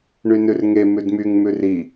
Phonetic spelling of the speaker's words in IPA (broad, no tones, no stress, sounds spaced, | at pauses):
ɳ y n ʉ r ŋ e m ʉ d m y ŋ m ʉ r i